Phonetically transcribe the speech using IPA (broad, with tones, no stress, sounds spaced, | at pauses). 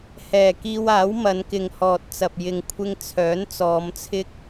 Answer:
h ɛː˨˩ k iː˧ w aː˨˥ w m ɐ˨˧ n k ɪ˨ ŋ h ɔː˨ t̚ t͡s ɐ˨ p̚ j ɪ˨ ŋ kʷʰ ɪ˧ ŋ t͡sʰ œː˨˥ n t͡s ɔː˨˧ m t͡sʰ ɪ˥ k̚